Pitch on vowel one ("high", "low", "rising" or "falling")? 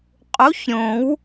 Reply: rising